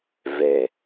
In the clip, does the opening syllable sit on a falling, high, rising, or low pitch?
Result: low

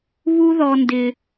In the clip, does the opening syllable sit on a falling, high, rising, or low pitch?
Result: high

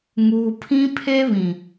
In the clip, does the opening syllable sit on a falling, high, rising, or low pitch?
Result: low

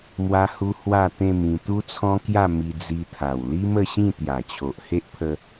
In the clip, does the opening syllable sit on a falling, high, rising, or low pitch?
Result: high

